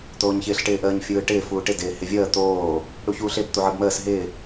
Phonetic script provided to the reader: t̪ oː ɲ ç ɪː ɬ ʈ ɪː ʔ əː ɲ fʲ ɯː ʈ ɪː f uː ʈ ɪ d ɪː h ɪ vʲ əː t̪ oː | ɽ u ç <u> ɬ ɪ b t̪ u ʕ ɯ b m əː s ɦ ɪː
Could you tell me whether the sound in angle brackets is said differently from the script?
yes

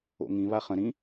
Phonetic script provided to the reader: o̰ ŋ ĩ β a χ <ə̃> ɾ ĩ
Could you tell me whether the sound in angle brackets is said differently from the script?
no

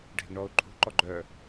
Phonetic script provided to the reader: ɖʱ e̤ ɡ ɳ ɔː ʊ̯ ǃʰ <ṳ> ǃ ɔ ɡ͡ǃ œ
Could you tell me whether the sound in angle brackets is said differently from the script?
no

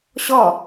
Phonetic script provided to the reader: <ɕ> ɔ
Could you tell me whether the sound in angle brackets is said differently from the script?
no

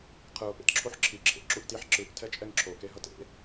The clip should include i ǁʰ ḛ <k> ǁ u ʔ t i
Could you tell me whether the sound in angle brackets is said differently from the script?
yes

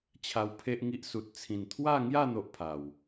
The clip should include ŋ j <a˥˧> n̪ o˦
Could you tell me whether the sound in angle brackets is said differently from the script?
no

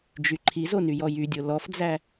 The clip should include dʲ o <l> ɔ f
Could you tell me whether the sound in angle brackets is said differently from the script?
no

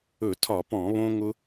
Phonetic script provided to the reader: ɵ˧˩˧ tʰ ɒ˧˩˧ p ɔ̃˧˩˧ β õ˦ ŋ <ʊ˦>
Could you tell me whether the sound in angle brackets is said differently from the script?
no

